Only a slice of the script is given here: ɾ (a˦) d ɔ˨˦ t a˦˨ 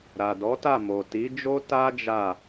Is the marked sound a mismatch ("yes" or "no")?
yes